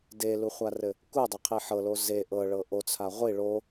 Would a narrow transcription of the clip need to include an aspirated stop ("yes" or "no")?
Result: yes